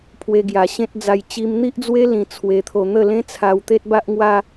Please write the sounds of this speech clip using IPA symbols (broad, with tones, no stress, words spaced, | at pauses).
pʰwe˧ɡja˨˩ ɕẽ˦t̚d͡za˧j t͡ɕi˧mn̪i˦ʔd͡zwe˦ lĩ˧t͡sʰwe˧t̪ʰo˧ n̪ə˥˧ lẽ˦t͡sʰa˧w t̪e˦t̚ba˦ʔŋwa˦